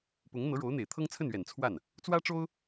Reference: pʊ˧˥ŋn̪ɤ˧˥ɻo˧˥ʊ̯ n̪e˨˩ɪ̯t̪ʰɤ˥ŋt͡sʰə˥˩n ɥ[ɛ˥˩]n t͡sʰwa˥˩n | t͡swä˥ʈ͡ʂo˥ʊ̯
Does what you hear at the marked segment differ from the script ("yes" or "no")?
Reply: yes